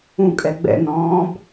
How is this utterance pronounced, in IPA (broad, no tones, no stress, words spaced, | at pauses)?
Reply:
ũkʼɛ ɡ͡bɛ̰nɔ̃ːb